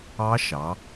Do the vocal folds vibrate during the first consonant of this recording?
no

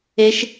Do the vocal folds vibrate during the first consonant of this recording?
no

